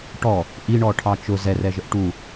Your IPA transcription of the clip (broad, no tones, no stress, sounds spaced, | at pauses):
ʈ ɔ | ʔ i ɳ ɔ ʈʰ ɑ t͡ʃ ʊ z ɛ r ɛ ʒ ə ʔ ʈ u